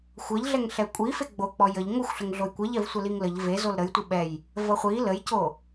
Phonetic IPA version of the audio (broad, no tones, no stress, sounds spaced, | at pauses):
xʷ ʌ ʎ ɮ ɛ ŋ ɬ ɛ kʷʼ i f e ɡ͡b o k͡p ɔ j ə ʎ ŋ o xʷ ɬ ə ŋ ɮ o j kʷ ɛ ʎ ɛ v sʷ ɛ l i ŋ l ə ʎ v e z o l ɾ ə j tʷ ə ɓ ɛ j | v ʌ χʷ i l ə j c o